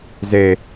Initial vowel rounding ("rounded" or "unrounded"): unrounded